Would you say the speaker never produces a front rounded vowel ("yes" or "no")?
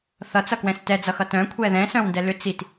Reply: no